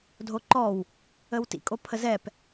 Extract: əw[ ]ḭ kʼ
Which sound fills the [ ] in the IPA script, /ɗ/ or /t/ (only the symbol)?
t